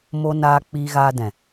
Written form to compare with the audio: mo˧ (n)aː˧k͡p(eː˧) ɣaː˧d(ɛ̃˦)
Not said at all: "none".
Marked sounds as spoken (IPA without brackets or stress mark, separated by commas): n, iː˧, ɛ̃˨